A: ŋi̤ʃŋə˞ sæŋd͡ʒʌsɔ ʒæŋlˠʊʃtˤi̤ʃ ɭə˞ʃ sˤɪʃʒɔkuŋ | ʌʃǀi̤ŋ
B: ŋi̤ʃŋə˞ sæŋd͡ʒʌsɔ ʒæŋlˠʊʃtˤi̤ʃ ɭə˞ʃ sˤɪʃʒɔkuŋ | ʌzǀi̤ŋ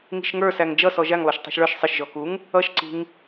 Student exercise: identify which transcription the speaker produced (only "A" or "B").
A